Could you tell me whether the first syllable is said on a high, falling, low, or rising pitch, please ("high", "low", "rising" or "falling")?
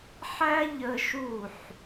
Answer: high